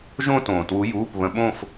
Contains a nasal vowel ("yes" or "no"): yes